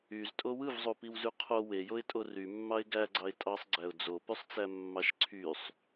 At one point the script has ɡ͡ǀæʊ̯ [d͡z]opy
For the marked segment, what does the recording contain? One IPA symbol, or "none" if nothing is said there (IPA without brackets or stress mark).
d͡z